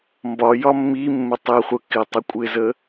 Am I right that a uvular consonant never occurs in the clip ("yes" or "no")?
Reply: no